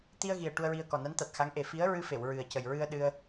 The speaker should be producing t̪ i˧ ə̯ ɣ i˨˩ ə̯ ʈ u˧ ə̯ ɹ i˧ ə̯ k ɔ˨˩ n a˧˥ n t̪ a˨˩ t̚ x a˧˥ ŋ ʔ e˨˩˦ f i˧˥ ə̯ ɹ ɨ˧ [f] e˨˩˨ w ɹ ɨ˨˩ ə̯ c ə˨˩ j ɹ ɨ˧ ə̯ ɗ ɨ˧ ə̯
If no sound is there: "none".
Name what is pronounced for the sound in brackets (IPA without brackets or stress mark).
f